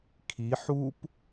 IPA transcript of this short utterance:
kʰi ħup

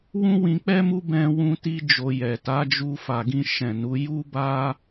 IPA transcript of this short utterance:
wũ˦wĩ˧k͡pɛ˦mu˦ bɛ̃˧wũ˧ti˧ d͡ʒo˧jɛ˨ ta˨˦d͡ʒu˧fa˨ɡĩ˧ ʃɛ̃˨nu˨˦ ju˦ba˦

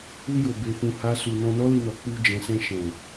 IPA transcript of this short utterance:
u˧jo˨ be˧fũ˧ha˦su˧ nɔ̃˧nɔ˦li˧nɔ˨ k͡pu˧d͡ʒɛ̃˨sɛ̃˧ ʃɛ̃˨

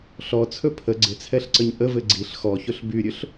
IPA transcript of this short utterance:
ɬɔt͡sʰɵ pʰə ɡ͡ǀɪt͡sʰɛɬǀəɲ ʔəvɘ ɡ͡ǀiɬ xɔçɵɬ byɾʲɵɬ

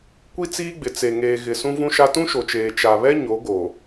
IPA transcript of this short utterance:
kʷi˦t͡siː˦ɡ͡bɪ˨ t͡se˨ŋeː˨ɣɪ˨ sũ˦vũ˦ʃa˦ tũ˦ʃo˨t͡ʃeː˨ t͡ʃa˨βɛ˦ ɲo˨˦ɡo˨

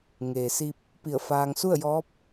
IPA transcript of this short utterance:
ŋeː˩si˧p̚ | pi˧˩ə̯faː˧ŋ su˥˨ə̯jɔː˧˥p̚

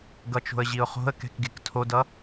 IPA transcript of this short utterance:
ɡʌt͡ʃo̤ə̯ʑiʊ̯χo̤ə̯ kɛ̤kɡektʰodʌ

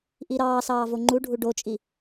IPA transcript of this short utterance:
ʔiɾɑː sɑːvoŋ͡ǃuɖʱu ɖot͡ʃʼi

